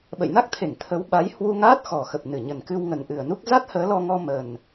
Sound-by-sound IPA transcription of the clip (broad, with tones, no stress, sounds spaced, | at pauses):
ɓ ə̰˧˨ j n a˦˥ k̚ t̪ʰ e˧˩ ŋ t̪ʰ ə˨˦ w ɓ a˨˦ j h w u˧ ŋ aː˦˥ t̚ x ɔ˨˩ x ə˨˩ p̚ n ɨ˧˩ ɲ ə˨˩ n k ɨ˧ w ŋ ə˨˩ n ʔ ɨ˨˩ ə̯ n u˦˥ k̚ z a˦˥ t̚ h əː˨˦ l ɔ˧ ŋ ɔ˧ m ə˨˩ n